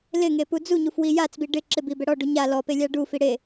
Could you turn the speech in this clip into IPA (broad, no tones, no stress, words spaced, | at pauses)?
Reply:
lɪŋe pud͡zuɲuf wijat͡sbi ɖɪ ǁɪbi bɛɽɔɖu ɲa lɔ pelʲaɖufi ɽe